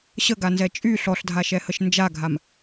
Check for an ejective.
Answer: present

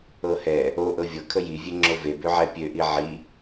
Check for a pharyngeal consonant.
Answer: present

